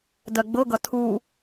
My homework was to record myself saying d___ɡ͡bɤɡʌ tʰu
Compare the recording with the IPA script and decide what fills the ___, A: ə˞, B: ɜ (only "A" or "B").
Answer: B